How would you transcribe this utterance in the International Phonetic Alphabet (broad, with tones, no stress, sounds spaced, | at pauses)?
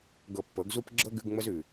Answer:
ɡ ɤ˧ pː ɤ˨˦ ɡ z u˦ p ɡ͡ǁ ɤ˦ ɡ ʉ˧ ɡ ŋ͡m ə˦ z ʉ˨